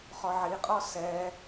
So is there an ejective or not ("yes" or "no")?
yes